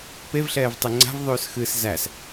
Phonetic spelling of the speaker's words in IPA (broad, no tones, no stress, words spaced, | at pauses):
pevɬɛːv tˤɨŋ͡ǀa̤vðˤʉːs xɨːszæs